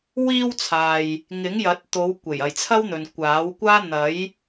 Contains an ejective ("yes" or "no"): no